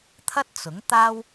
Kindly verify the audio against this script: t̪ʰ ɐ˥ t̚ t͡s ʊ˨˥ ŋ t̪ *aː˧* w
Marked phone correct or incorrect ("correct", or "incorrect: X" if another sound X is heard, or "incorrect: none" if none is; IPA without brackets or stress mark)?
incorrect: aː˥